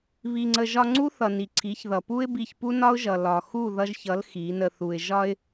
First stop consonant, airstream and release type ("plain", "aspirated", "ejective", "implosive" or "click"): click